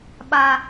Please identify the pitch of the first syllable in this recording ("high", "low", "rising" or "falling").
high